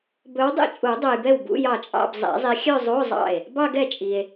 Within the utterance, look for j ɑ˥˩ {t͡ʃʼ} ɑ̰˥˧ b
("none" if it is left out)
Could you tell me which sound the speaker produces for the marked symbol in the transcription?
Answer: t͡ʃʼ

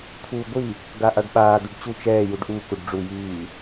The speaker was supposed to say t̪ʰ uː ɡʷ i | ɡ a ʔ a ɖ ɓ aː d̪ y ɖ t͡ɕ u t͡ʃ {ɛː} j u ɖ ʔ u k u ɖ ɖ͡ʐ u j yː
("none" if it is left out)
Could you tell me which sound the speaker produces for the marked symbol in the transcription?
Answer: ɛː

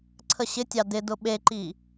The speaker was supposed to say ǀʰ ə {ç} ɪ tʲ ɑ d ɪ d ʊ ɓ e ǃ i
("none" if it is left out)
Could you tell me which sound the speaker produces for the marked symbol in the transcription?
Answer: ɕ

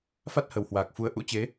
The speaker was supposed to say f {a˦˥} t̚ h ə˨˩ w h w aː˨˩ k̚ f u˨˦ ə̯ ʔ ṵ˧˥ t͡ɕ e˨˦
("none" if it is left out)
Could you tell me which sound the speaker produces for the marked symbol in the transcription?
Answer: a˦˥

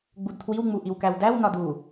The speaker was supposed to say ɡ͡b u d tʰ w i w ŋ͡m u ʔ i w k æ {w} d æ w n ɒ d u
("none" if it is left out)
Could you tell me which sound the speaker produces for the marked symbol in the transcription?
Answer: w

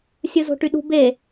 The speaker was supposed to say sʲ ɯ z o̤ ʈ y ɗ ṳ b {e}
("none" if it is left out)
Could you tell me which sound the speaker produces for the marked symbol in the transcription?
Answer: e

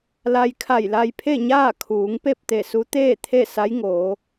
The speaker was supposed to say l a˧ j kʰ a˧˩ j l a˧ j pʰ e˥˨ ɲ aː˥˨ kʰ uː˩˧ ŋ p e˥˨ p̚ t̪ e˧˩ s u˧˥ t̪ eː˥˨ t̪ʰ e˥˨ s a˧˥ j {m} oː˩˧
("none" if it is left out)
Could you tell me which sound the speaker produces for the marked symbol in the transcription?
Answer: ŋ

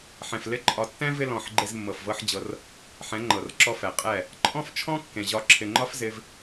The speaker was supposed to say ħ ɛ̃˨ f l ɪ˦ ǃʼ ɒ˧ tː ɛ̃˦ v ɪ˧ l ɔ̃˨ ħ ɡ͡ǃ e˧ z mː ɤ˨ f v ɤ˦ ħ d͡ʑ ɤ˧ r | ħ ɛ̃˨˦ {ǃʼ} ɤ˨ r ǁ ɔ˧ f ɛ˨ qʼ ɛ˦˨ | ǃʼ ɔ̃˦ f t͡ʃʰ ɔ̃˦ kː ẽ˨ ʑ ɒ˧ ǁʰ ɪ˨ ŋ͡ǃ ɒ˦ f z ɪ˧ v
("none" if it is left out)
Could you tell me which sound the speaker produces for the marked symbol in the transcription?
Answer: ŋ͡ǃ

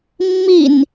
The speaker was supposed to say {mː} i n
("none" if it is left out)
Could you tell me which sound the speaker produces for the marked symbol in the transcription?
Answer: mː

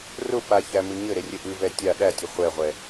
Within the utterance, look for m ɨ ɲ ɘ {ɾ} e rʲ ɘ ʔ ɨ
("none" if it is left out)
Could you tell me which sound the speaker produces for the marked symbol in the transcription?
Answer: ɾ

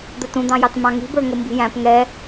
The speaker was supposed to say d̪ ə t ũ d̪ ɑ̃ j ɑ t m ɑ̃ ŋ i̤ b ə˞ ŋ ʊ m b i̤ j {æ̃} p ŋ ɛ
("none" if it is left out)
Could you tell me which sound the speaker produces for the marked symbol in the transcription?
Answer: æ̃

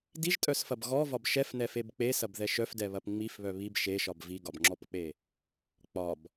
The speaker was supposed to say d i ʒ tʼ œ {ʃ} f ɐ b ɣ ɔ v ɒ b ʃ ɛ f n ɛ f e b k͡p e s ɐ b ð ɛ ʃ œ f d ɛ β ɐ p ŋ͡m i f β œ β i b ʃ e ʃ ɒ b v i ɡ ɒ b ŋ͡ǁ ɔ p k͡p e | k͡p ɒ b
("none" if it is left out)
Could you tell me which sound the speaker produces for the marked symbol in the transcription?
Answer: s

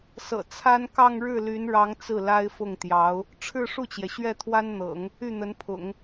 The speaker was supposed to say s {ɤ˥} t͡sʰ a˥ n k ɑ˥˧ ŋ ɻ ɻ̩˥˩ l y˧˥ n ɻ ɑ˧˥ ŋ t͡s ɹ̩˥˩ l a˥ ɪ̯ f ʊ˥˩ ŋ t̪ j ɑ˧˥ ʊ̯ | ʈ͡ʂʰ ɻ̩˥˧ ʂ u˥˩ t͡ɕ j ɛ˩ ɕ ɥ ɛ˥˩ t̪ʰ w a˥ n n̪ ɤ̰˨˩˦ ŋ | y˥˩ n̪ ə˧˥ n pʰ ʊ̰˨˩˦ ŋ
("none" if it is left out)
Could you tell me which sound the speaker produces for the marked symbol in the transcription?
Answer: ɤ̰˨˩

